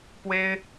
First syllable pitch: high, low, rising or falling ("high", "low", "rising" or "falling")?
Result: high